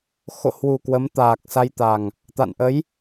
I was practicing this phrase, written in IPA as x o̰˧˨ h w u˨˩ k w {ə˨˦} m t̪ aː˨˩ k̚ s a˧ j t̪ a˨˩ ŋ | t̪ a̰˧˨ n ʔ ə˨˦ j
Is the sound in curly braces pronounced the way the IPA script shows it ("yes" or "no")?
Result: yes